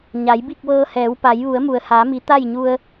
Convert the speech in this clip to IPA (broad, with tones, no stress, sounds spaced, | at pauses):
ɲ a˩˧ j b i˥˨ k̚ ʋ ɤː˧ h ɛː˩˧ w p a˩˧ j ʋ u˩˧ ə̯ m u˩ ə̯ h aː˩˧ m i˩˧ t̪ a˥˨ j ɲ u˧ ə̯